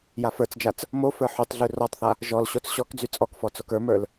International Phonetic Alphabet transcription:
j a f ə˞ t͡s d͡ʒ a t͡s | m o f ə˞ ħ y tˤ ɮ ʉ r ɔ tˤ θ a | ʒ ɔ l ɕ o t͡s ɕ ɔ k d͡z y t͡sʼ ɔ k f ɔ t͡s o k ə˞ m ə˞ l

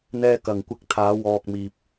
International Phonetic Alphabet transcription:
n̪ ɛː˧ k ɐ˨ ŋ kʷ ɪ˧ k̚ t̪ʰ aː˨˧ w ɔː˧ k̚ m iː˧ p̚

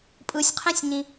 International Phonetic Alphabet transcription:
pʼ ɯ sʲ qʰ ẽ sʲ ɲ ĩ

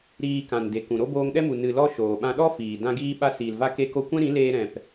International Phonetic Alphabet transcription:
ɾ iː˧ k ã˨ n d e˨ k ũ˨ ɾ o˦ b oː˧ ŋ ɗ ɛ˦ m u˨ n ɨ˨ l ɔ˧ ʃ oː˨ ɓ ã˧ ɗ ɔ˦ f iː˨ d ã˧ ɡ iː˧ ɓ a˧ s iː˨ l v a˧ k e˧ k o˧ kʷ ɛ̃˦ ɾ ĩ˨˦ l eː˧ ɾ ɛ̃˨ p

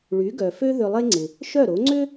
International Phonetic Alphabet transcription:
ɭ y˩˥ ɡ œ˩ f ø˥ ð ʏ˧ lˠ e˥ ŋ͡ǀ ɪ˩ | ʃ œ˥˩ ɾ o˩˥ ŋ͡ǀ ʏ˥

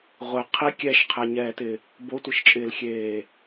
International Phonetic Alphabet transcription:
ʁʷ ɪ qʰ i kʲ ɛ ʃ qʰ ɛ ɲ ɛː t ɪ | b o tʷ i ʃ t͡ʃʼ ɪː l xʲ eː

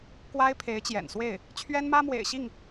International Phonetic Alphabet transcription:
k w a˥ ɪ̯ pʰ e˧˥ ɪ̯ t͡ɕ j ɛ̰˨˩ n s w e˥˩ ɪ̯ | t͡ɕʰ ɥ ɛ˥ n m ä˥ m w ḛ˨˩ ɪ̯ ɕ i˥˩ ŋ

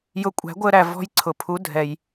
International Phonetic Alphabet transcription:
j ʊ˧ kʷʼ æ̤˩˥ ɡʷ əː˧ ɾ æ˩ v ɔ̤˧ j ǀʰ ʊ˩ pʰ u˩˥ dʱ ɛ˩ j

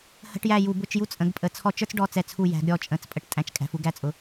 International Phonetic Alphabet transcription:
h ə̤˧˥˧ ʈ j æ˦˨ j u˧˩˧ b ʊ˧˥˧ t͡ʃ j u˥ t͡sʼ ə̃˨˦ ɡ pʼ ə˨˦ t͡sʰ ɔ˦˨ t͡ʃ ə˞˥ t͡s ɖ ɔ˧˥˧ t͡s ɛ˦˨ t͡sʰ u˦˨ j æ̤˨˦ ɡ ɾʲ ɔ˦˨ t͡ʃʼ ə̃˨˦ t͡s pʼ ə˨˦ ʈ tʼ æ̃˦˨ t͡ʃ kʼ æ̤˨˦ f u˥ ɡ æ˧˥˧ t͡sʼ ʊ˨˦

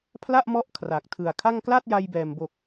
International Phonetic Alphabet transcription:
pʰ l a˥˩ ʔ m ɔ˦˥ ʔ kʰ r a˨˩ k̚ tʰ ɯ˨˩ a̯ kʰ a˥˩ ŋ k l a˥˩ t̚ j a˧ j b ɛː˨˩ m b o˨˩ k̚

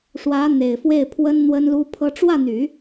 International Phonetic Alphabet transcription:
ʂ w ä˧˥ n̪ e˨˩ ɪ̯ f w e˥˩ ɪ̯ pʰ w ə˥ n n̪ w ə˥ n l u˥ pʰ ɤ˥ ʈ͡ʂ w ä˥˩ n̪ y˨˩˦

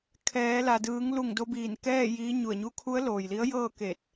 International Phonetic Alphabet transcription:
kʰ ɛː˩˧ l a˩ d ɯː˩˧ ŋ l u˧˩ ŋ d o˧ b iː˧˩ n k ɛː˥˨ j iː˧˥ ɲ u˧˩ ə̯ ɲ u˧˥ kʰ u˧˥ ə̯ l oː˩ j l i˧˥ ə̯ j ɤː˥˨ k e˧˩ t̚

